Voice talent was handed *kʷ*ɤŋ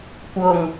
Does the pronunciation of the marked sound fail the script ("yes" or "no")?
no